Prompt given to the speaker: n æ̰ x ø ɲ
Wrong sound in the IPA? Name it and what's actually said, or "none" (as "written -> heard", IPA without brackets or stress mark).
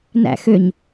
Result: none